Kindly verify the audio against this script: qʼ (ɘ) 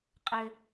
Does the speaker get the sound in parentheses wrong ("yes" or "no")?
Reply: no